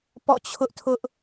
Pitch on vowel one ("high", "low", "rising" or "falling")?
falling